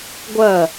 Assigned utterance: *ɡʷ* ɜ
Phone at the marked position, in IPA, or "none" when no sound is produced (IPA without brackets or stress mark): ɡʷ